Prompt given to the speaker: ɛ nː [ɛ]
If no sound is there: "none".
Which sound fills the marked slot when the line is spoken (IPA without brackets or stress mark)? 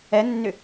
ʏ